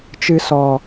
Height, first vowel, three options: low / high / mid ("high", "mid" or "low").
high